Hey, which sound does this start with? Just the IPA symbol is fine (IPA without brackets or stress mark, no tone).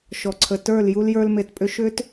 ʃ